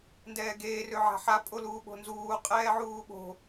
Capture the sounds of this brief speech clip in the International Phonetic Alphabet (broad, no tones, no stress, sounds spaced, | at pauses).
n d ɛː ɡ eː r ø ʕ a̤ ħ a pʼ o l uː ɓ o̤ n z uː qʼ ɛː ʕ uː ɓ o̤